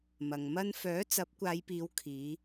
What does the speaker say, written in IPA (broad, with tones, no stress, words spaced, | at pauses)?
mɐ˨ŋmɐ˥n fœː˨˥t͡sɐ˨˥p̚ kʷaː˨˧jpiː˨˧w kʰiː˨˧